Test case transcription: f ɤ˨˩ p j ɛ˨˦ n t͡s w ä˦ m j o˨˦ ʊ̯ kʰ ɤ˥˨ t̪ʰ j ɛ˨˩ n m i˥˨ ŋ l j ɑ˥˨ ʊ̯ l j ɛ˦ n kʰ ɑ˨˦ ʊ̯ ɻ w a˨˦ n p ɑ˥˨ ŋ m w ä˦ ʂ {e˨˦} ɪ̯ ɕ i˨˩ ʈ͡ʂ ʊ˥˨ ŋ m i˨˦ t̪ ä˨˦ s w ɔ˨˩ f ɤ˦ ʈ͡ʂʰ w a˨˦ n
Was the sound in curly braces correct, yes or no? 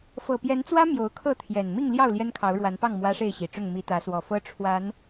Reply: no